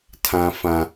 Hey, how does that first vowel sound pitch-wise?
high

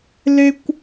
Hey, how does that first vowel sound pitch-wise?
high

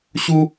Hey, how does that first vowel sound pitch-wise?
high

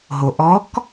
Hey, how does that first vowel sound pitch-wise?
low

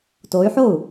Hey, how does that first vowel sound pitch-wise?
rising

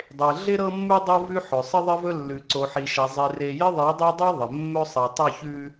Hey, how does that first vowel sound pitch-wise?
low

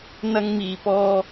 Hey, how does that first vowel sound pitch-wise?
high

